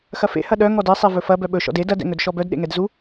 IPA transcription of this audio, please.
xɐfḛ hɐɗœ ŋɔdɛ sˤevɵfɐ bœɓɵ ʃɔ̰de dɐd ɛ̰ŋɵdʃɔbœd ɗḛŋɛdzu

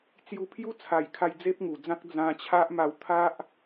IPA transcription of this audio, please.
t͡sju˧pʰju˦t͡sʰa˨˩jkʰa˧j d͡ze˦p̚ŋu˨˩d͡zã˦k̚ d͡zã˧t͡ɕʰa˦ʔ ma˨˩w t̪ʰa˦ʔ

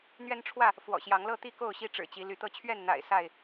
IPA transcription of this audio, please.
n̪ɥɛ˦n ʈ͡ʂʰwä˥˨ | fwɔ̰˨˩ɕjɑ˨˦ŋlɤ˥˨t̪i˥˨ ko˥˨ʊ̯ɕi˦ ʈ͡ʂɻ̩˨˩t͡ɕi˨˦ ly˨˦t̪ɤ˥˨ t͡ɕʰɥɛ˥˨nn̪a̰˨˩ɪ̯ sa˥˨ɪ̯

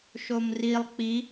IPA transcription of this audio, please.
ʃomrilˠ k͡pi

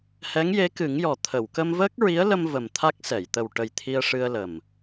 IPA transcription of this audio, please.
hɛ˧˥ŋje˧˥kɨ˨˩˦ŋjɔ˨˩ t̪ʰə˨˩˨w kə˧mvəː˦˥k̚ɹi˧˥ə̯lə˧m və˨˩mt̪ʰa˦˥k̚sɛ˨˩˨j t̪ə˨˩wʈə˨˩j t̪ʰi˧ə̯ʂɨ˧ə̯lə˨˩m

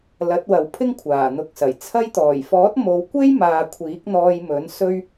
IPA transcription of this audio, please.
lɐ˨˥t̚wɐ˨˧w pʰɪ˥ŋkʷʰaː˨˩n̪ʊ˨˥k̚sɐ˨˩j t͡sʰɐ˧jt̪ɔː˨˩jfɔː˨˥t̚ mo˨˧wkʷe˥jmaː˨ kʷʰiː˨˥k̚n̪ɔː˧jmɵ˨˥n sɵ˥ɥ

